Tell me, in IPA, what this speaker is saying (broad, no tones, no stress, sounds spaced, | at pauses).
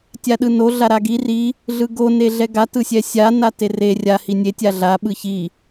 tʲ a ɗ ɯ n o ɮ a ɾ a ɡ i r i | ɮ ɯ ɡ o n e ɮ ɛ ɡ a t ɯ sʲ ɛ sʲ a n a t e r e rʲ a h i nʲ e tʲ a ɮ a ɓ ɯ ç i